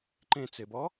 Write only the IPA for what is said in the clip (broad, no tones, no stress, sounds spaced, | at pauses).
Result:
ǃ ẽ t͡s e b ɔ